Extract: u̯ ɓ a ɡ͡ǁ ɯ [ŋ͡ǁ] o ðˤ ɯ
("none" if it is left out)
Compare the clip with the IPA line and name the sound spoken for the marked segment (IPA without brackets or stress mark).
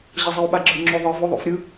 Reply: ŋ͡ǁ